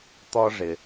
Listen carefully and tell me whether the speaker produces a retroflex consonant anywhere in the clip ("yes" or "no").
yes